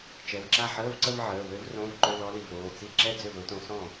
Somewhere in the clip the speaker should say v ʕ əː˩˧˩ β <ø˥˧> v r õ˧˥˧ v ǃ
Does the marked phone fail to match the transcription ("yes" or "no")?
yes